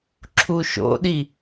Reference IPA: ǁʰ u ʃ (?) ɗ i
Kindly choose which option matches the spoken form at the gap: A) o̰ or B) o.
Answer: A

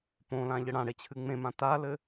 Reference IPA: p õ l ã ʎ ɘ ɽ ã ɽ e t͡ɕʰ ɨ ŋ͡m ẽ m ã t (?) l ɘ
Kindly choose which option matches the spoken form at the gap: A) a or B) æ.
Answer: A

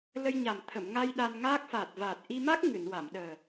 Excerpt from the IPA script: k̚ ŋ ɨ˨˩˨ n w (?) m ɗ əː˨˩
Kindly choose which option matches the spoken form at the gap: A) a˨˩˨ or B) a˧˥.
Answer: A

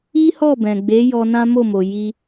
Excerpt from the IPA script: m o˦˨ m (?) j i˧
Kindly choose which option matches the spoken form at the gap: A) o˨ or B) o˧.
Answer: A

